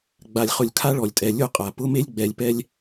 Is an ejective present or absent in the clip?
present